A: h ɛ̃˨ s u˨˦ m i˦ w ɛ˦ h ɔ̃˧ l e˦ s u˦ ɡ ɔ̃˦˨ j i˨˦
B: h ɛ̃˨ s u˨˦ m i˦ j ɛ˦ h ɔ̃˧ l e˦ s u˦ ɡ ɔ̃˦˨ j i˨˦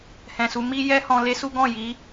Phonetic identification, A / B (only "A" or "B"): B